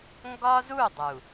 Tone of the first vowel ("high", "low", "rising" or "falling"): high